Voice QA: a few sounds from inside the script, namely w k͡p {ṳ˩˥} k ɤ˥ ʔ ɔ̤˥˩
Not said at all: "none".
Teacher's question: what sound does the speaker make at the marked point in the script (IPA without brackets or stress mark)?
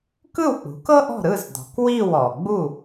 ṳ˩˥